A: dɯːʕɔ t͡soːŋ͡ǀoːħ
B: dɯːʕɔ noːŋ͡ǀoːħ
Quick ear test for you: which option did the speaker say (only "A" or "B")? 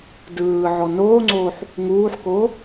B